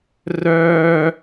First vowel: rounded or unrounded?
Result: rounded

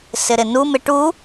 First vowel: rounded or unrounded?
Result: unrounded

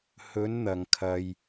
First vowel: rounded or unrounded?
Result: rounded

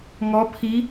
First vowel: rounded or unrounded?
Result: rounded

